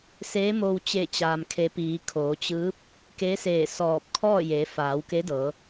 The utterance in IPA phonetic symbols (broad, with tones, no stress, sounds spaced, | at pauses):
s eː˧˥ m o˧ w t͡ɕ e˧˩ t͡ɕ aː˩ m kʰ e˩˧ p iː˩˧ kʰ oː˩˧ t͡ɕ ɯː˧˥ p̚ | k e˧˥ s eː˧˩ s ɔː˧˩ p̚ kʰ ɔː˥˨ j eː˩˧ f aː˩˧ w k e˧˥ d ɤː˩˧